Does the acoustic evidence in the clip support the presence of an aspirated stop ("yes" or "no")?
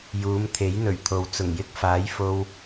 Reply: yes